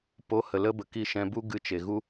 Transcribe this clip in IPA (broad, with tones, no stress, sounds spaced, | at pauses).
p o˨˦ h ə˨ l ə˧ b ə˨ k i˧ ʃ ɛ̃˧ b u˦ ɡ ɨ˧ t͡ʃ e˨ ɣ u˦